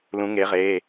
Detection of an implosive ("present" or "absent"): absent